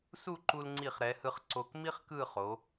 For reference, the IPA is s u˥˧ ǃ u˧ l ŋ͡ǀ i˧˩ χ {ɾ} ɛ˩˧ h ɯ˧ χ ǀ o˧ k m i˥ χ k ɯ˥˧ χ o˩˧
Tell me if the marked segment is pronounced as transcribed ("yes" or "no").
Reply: yes